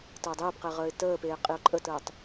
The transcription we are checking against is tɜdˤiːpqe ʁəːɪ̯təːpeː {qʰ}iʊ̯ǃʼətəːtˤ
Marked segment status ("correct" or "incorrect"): incorrect